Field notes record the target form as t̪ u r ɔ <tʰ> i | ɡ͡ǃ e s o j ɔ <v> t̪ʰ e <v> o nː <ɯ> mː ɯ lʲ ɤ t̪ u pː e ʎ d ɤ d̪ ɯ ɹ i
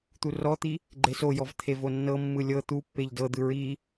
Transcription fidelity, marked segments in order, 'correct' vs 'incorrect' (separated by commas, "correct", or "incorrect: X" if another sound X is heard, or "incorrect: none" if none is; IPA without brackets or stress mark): incorrect: t̪, correct, correct, incorrect: ɤ